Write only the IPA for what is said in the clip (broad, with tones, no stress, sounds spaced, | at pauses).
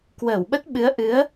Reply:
k w əː˧˩ w ɓ ə˦˥ t̚ ɓ ɨ˨˦ ə̯ ʔ ɨ˨˦ ə̯